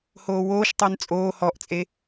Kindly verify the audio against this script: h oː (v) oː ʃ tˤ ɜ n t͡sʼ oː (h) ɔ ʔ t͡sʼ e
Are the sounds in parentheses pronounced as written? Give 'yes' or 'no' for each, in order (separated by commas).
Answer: no, yes